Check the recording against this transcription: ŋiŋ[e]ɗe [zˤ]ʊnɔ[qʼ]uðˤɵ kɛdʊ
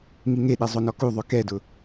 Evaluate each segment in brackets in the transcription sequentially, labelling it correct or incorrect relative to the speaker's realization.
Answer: correct, correct, incorrect: k

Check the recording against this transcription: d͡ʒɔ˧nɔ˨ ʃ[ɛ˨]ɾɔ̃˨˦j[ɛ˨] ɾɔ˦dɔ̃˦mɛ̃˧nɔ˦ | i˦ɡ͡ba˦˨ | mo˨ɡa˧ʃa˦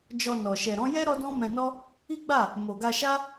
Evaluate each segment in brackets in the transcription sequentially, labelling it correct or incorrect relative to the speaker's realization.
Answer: correct, incorrect: ɛ˦

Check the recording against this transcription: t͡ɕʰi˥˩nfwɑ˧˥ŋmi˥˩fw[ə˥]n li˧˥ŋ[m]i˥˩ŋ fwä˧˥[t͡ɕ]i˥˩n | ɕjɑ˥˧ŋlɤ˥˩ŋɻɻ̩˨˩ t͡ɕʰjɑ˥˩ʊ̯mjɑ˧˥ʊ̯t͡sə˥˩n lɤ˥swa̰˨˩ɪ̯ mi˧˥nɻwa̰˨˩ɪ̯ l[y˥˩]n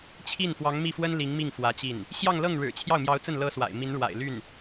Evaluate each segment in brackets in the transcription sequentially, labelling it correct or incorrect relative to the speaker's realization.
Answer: correct, correct, correct, correct

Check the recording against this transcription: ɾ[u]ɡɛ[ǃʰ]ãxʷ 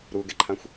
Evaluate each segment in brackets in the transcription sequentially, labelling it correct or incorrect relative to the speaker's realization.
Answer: correct, correct

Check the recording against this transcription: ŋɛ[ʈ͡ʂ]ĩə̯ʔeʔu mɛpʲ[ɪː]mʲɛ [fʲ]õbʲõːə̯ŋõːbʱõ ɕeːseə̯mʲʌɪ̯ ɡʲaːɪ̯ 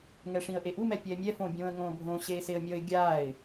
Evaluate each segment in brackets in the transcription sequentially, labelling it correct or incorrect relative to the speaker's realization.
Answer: incorrect: ʂ, incorrect: ɛː, incorrect: f

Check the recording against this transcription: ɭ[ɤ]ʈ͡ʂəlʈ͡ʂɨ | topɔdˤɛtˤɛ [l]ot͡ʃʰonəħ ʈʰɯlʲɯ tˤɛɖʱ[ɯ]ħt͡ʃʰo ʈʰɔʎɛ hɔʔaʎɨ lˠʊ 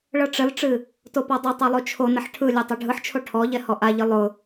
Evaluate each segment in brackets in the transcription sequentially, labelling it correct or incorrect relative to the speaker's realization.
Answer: correct, incorrect: lˠ, correct

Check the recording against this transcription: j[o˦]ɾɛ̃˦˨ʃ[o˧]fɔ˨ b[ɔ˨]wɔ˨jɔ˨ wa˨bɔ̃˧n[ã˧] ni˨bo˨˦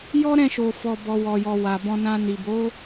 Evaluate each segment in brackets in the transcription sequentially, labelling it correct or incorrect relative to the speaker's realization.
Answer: incorrect: ɔ˦, incorrect: o˨, correct, correct

